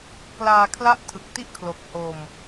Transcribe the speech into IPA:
klaː˧ kʰla˥˩ʔ tʰɯ˨˩k̚ti˥˩ʔkʰlo˨˩k̚ ho˧m

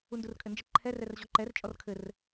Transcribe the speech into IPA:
undurkʼɘnd͡ʒə ǃʰɛr ɛrʑɔǃɛr t͡ʃʼɔrkʰɘr

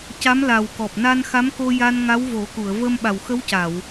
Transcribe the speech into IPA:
ca˧˥mla˨˩w kɔ˨˩p̚na˧nxa˧˥mko˧ ja˧n ŋa˧˥wvo˨˩˦ku˨˩˨ə̯ və˧mɓa˨˩wxə˧˥wca˨˩˨w

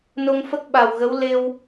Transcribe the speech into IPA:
no˧ŋfə˦˥k̚ɓa˨˩wɣə˧˥w le˧w

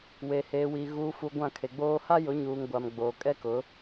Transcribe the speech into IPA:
we˨heː˨wi˨ ɣuː˨fu˨ ɡʷã˦˨kʰe˨ɡ͡boː˦ ha˦jʊ˨˦ɲuː˨ŋ ɡʷa˨mɡ͡boː˨ kʼɛ˦kʊ˨˦

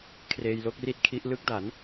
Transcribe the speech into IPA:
kʰreː˧jlo˦˥k̚ri˥˩t̚kʰi˦˥ʔ lɯ˦˥k̚da˩˦n

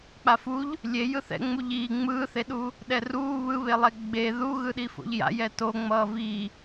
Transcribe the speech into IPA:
k͡pafuʎ | lʲe jɯθɛ̰ ŋ͡muʎiː ŋ͡mɯːθeɗu | ɗɛruː βɯβelˠɛ ɡ͡be ðuɣɯɗi fo̰ʎja̰ jɛtoŋ͡mʌː vi

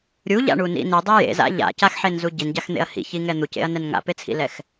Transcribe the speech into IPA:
ɾʲuʎa̰ɳunḭ nidˤe jḛza̰ ʎa̰caxħenzu ɟinɟaxn̪ḛɐ̯ hḭçiŋɛ n̪ucḛɐ̯nɛn ŋa̰pet͡sʰḭlɛx

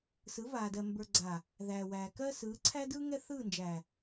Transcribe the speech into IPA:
sɯ˨˦vaː˨dɜ˨ mbə˞˨ɡ͡ǀa˨ | ðæː˨wæː˨ kɜ˦ sɯː˨˦ǀʰæ˦dɯː˦ ŋɛ˦ θɯː˦˨nd͡ʒæ˨

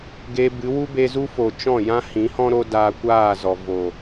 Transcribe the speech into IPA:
ɡe˧bɨ˨˦ wu˦be˧zu˦fo˨ t͡ʃɔ̃˦˨jã˦hĩ˨˦hɔ̃˦ ɾo˦daː˧kʷaː˦˨ zɔ˨vo˨

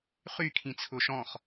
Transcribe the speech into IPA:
χykʰĩt͡sʰʊ ʃɔ̃χ

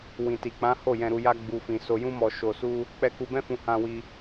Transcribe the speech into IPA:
wĩ˨ti˨k͡pã˨˦ ho˦˨jɛ̃˧ɾu˧ ja˦ɡ͡bu˧fĩ˧ so˧jũ˦mɔ˧ ʃo˧su˦ | k͡pɛ˦ku˦ bɛ̃˦fũ˧hã˧wi˧

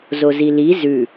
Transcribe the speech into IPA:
zozili zʉ

